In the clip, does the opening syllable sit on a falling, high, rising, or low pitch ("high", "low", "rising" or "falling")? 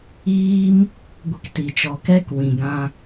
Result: high